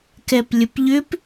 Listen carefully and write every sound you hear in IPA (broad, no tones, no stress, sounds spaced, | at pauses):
k ɛ p lʲ ə p ʎ ʏ p